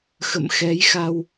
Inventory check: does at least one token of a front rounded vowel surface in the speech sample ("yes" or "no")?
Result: no